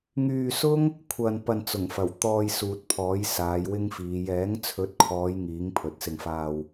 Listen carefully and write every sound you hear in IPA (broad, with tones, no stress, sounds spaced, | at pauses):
ŋ yː˧ s ʊ˥ ŋ | kʷʰ ɐ˧ n p ɐ˧ n t͡s ʊ˨˩ ŋ f ɐ˨˩ w t̪ ɔː˧ j s uː˨ t̚ pʰ ɔː˨˥ j s aː˨˧ j w ɪ˥ ŋ f iː˨˧ j ɛː˨˥ ŋ t͡sʰ ɵ˨˥ t̚ kʰ ɔː˨˧ j ŋ iː˨˥ ŋ pʰ ɵ˨˥ t̚ s ɪ˧ ŋ f aː˧ w